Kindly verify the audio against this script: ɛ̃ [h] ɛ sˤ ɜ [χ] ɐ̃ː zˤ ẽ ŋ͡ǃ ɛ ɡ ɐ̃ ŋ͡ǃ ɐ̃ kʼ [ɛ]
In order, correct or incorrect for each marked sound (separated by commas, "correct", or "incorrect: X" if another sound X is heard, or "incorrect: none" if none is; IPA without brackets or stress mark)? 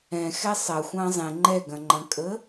incorrect: x, incorrect: xʷ, incorrect: ə